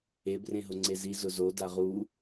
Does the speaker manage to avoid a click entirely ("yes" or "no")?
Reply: no